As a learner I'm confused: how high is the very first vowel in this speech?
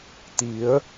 high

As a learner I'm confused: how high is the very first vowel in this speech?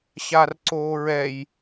low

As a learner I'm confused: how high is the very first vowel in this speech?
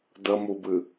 mid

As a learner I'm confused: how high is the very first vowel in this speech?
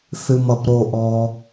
high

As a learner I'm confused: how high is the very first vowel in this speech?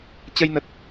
mid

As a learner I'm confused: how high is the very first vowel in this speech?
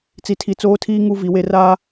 high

